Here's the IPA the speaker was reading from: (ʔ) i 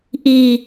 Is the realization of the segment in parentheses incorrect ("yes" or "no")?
no